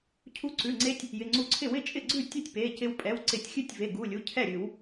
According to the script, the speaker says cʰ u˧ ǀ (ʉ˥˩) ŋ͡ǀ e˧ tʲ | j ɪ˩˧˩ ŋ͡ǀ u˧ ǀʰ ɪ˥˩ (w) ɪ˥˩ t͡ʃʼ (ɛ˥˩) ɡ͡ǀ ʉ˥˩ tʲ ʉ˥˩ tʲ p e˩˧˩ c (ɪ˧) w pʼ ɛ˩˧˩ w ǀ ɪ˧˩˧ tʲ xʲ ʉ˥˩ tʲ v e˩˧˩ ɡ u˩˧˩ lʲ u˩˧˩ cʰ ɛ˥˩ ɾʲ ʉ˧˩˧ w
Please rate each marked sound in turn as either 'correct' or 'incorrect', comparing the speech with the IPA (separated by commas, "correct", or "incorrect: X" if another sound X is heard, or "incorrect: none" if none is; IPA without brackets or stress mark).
incorrect: ʉ˩˧˩, correct, incorrect: ɪ˥˩, correct